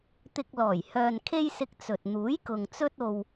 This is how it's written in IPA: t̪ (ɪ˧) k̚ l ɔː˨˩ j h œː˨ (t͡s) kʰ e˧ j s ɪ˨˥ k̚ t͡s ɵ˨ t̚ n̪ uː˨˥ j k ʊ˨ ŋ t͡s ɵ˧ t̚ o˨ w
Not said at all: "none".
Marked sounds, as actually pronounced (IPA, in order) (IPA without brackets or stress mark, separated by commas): ɪ˧, n